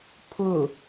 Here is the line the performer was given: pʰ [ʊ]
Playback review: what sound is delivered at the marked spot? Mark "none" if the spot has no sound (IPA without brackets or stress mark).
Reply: ʊ